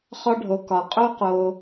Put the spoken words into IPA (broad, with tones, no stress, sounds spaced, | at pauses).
χ ɒ˧ ɖʱ o˨ k ɒ˨ qʼ o˦ q o˧